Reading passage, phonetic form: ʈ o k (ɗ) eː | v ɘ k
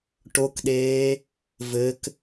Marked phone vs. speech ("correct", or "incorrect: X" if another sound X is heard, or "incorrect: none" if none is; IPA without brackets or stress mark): correct